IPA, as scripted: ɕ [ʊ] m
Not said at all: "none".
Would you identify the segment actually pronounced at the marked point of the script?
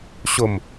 ʊ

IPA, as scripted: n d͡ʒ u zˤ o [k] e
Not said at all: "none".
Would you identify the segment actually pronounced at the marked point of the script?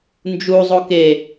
k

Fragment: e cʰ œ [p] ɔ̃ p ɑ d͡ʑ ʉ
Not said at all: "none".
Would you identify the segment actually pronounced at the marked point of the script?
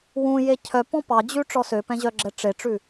p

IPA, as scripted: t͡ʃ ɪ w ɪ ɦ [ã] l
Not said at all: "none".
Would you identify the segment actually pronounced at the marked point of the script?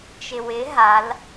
a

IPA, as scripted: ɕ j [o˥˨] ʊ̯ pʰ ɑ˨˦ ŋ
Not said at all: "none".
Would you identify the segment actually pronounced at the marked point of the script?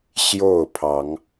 o˥˨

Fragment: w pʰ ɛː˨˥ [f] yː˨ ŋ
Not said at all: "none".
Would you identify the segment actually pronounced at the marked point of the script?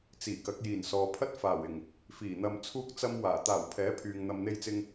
pʰ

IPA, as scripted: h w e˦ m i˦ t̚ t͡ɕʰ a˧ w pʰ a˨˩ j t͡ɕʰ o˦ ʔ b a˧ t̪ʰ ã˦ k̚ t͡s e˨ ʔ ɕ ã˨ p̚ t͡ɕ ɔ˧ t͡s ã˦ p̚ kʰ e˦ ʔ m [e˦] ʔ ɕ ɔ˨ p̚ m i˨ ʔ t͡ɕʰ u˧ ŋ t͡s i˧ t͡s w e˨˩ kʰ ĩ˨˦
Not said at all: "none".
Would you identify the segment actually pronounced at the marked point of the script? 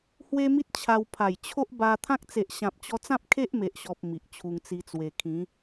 e˨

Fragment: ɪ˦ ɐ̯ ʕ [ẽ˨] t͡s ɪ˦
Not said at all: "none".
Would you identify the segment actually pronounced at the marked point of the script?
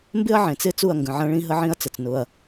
ẽ˨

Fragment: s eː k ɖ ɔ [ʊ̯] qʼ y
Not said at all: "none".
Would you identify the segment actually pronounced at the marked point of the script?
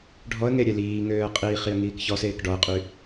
ə̯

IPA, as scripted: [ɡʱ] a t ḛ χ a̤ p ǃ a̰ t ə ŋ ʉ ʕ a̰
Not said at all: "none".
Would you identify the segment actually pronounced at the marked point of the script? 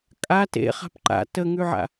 kʼ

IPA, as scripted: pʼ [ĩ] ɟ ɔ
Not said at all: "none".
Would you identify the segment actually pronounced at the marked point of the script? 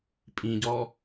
ĩ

